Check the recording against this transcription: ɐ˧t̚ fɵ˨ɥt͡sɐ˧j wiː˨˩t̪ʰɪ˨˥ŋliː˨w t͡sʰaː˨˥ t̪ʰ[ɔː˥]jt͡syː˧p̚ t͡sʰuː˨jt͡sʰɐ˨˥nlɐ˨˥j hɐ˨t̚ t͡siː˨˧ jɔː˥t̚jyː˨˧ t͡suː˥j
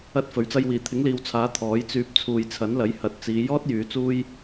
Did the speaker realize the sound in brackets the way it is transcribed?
no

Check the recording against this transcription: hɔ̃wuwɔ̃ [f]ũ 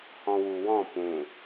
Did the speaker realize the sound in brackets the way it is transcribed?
no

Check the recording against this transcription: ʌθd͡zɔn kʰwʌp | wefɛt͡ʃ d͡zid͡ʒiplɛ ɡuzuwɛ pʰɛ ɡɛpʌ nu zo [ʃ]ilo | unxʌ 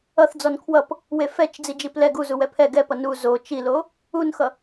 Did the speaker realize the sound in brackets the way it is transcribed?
no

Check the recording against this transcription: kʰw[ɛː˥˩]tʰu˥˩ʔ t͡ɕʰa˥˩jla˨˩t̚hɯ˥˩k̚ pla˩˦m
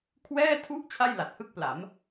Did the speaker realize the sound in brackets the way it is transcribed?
yes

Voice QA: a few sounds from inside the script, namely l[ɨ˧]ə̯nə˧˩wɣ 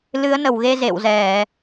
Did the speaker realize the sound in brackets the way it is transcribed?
no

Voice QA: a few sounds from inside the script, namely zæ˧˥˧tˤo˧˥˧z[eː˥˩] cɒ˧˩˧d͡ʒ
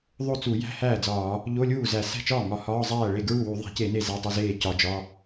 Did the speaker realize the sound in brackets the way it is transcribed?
yes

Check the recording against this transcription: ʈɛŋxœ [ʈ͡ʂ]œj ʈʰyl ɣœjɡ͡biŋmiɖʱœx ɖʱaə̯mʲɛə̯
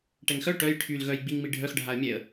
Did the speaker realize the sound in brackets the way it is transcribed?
no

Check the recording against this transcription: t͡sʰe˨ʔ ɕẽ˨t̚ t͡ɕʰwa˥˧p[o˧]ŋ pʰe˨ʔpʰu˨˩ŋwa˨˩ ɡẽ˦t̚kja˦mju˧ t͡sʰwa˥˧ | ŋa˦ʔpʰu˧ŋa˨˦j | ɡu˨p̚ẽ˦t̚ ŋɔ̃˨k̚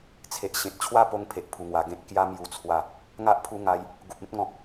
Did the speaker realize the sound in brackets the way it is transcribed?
yes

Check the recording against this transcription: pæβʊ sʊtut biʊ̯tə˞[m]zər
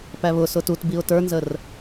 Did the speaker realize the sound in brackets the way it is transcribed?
no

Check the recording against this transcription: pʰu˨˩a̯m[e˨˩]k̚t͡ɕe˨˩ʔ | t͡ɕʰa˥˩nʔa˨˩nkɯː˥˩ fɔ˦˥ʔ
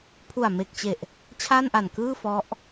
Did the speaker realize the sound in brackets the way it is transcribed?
yes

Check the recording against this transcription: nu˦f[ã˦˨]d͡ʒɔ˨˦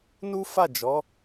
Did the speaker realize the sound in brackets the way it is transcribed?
no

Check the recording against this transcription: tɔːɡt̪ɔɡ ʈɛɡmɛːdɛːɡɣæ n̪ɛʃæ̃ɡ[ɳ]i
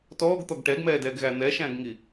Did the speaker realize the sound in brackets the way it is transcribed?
no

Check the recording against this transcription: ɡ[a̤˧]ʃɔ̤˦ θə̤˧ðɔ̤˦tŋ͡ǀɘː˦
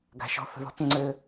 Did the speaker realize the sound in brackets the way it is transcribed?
yes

